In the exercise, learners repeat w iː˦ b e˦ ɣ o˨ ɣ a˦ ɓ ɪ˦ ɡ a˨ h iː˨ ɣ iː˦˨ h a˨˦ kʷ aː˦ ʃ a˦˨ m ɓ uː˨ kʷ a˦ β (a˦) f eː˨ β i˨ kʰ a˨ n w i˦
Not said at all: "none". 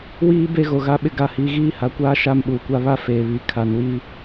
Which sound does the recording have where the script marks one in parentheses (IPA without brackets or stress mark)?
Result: a˦